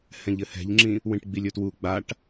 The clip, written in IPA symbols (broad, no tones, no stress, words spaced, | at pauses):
hɛ̃ʎɘhɛ̤ʎŋ͡ǁĩ | wĩʈɡ͡bilʲɵtwu ɡ͡baʈ